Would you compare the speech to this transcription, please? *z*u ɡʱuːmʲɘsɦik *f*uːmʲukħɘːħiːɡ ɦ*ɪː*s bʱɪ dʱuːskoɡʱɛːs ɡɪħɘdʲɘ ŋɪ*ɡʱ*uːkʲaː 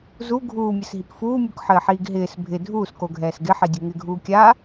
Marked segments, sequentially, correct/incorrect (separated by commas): correct, correct, correct, correct